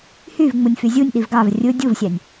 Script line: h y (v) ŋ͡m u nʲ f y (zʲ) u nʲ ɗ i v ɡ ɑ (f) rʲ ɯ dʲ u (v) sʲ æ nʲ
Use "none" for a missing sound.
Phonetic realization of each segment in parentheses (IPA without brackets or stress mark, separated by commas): v, zʲ, v, v